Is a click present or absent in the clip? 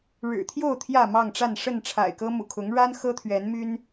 absent